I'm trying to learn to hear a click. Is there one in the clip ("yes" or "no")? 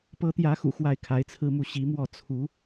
no